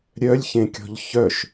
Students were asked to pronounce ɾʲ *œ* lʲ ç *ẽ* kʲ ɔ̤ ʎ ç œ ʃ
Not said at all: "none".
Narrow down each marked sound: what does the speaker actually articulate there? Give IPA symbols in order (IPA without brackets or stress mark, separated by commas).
œ, ẽ